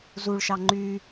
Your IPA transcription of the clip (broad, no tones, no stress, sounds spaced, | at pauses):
z u ɭ ʃ ɑ ŋ͡ǃ y